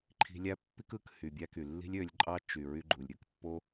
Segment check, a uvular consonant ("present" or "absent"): absent